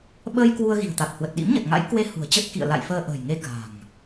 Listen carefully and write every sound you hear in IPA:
ɓ əː˧ j k w u˧ ə̯ ɣ i̤˨˩ ə̯ t̪ a˨˩ t̚ h w ə˨˩ t̚ ɗ ḭ˧˥ m ɲ ə˨˩ t̚ ŋ a̰˧˥ j k w e˨˦ h ṳ˨˩ ə̯ t͡ɕ ə˦˥ t̚ k ḭ˧˨ ə̯ l a̰˧˨ j f əː˧ ʔ ə̤ː˨˩ j ŋ e˧ k a̤˨˩ ŋ

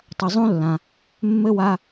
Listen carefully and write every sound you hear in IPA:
tˤ ɐ˧ zˤ ũ˦ lː ã˧ | mː ɘ˦ w a˦

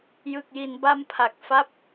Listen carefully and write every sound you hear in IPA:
j ɯ˨˩ k̚ j i˩˦ n b a˧ m pʰ a˨˩ k̚ f a˦˥ p̚

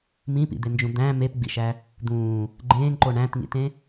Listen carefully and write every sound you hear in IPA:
m ĩ p ḭ d̪ e n d͡ʒ ũ d̪ æ̃ m e p ɡ͡b ḭ ʃ æ | d̪ ũː | ɡ͡ǃ ẽː ŋ ǃ o ɳ æ̃ t ŋ ḭ t ẽ

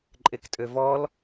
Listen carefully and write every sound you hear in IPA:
ǃʼ e k tʼ ø v ɔ l

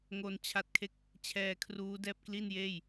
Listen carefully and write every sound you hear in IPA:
ŋ o˧ n t͡ɕʰ a˦˥ t̚ kʰ e˥˩ k̚ | t͡ɕʰ ɛː˧ kʰ r uː˦˥ d ɛː˥˩ p̚ k l i˥˩ n j eː˥˩ j

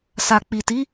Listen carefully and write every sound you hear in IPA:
s a˨ k͡p i˨ t i˨˦

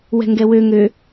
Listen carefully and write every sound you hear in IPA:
w ɛ̤ ŋ ɡ ɛ w ø ŋ ø

